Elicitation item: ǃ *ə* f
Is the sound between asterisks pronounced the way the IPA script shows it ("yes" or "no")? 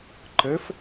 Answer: yes